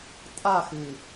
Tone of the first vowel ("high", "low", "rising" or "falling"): falling